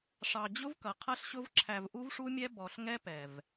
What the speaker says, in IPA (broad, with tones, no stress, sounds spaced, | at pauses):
ʂ ɑ˧ d͡ʑ ʊ˦ v k ʌ˨ qʰ ʌ˦ ɬ ɕ ʊ˦ v ǁʰ æ˧ v ʔ u˦ v ʂ u˦ mʲ ɛ˦ b ɔ˧ ɬ ŋ ɛ˦ p ɛ˨ v